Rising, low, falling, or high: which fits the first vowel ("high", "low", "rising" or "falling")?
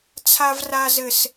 low